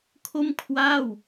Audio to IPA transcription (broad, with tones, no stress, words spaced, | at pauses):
kʰo˥˩mkʰwaː˥˩w